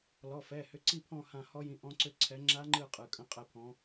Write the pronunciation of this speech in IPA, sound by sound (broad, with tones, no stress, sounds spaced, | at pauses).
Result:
l ɔ˩˧˩ f ɛ˩˧˩ h ʏ˨˥ ǀ i˦˨ pʰ ɔ̃˦˨ h ã˦˨ h ɔ˦˥ j ĩ˨˥ ʔ ɔ̃˦˥ ǀ ʏ˦˨ ǀʰ ɛ˨˥ ŋ͡ǁ a˦˥ ŋ͡ǃ ɯ˦˨ qʼ ɯ˩˧˩ kʼ ə̃˧˥˧ qʼ ɛ˦˨ pʰ ɔ̃˨˥